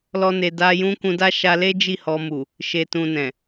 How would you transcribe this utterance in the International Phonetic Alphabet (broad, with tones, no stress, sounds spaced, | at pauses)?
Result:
l ɔ˦ n e˧ d a˦ j ũ˦ k ũ˧ d a˦ ʃ a˧ l e˦ d͡ʒ i˦˨ h ɔ˧ m u˨ | ʃ e˨ t ũ˨ n ɛ̃˨